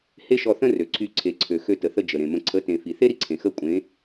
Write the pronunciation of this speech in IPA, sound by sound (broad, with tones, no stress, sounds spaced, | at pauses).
h e˦ ʃ ɔ˧ θ ə̃˦ r ø˨ ǀʰ y˧ ǀʰ e˨ ǀʰ ø˨ x ø˧ t ə˨ θ ə˧ d͡ʒ ə˨ ɾ ẽ˨ m ə̃˧ ǀʰ ə˨˦ t ẽ˨ f i˨ θ e˦ ɾ i˧ ǀʰ ẽ˨ x ə˦˨ kʷʼ ẽ˨˦